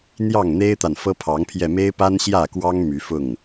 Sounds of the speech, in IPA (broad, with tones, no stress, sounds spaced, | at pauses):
n̪ j ɑ˥˨ ŋ n̪ e˦ ɪ̯ t̪ a˨ n f ɤ˦ pʰ ɑ˨˦ ŋ pʰ j ɛ˧ m e˦ ɪ̯ p a˦ n ɕ j ä˥˨ k w ɑ˦ ŋ m y˨˦ f ʊ˥˨ ŋ